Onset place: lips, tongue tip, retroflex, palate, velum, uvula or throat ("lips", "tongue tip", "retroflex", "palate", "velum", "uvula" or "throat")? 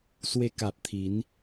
tongue tip